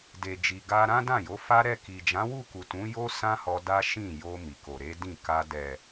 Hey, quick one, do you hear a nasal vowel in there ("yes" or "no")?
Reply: yes